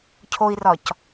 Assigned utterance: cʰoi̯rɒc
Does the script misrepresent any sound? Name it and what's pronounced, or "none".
none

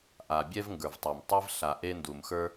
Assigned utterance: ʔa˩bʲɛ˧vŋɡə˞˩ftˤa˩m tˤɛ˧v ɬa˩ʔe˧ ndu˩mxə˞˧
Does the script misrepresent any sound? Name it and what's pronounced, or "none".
f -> v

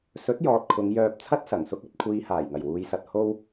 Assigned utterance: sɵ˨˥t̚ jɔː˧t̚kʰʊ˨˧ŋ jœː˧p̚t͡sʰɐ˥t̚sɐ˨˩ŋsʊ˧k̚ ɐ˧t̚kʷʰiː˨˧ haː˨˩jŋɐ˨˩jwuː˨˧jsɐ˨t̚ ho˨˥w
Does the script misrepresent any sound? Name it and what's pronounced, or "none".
o˨˥ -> o˥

